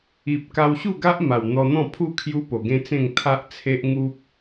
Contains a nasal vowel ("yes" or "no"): yes